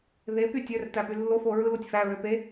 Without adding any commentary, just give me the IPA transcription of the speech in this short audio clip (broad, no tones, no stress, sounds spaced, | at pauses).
ð e p y tʲ ø r t æ p y lː o f o ɹ ɯ l o tʲ f æ ɹ ø p e